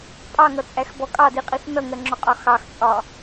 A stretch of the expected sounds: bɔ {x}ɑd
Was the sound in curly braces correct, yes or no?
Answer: no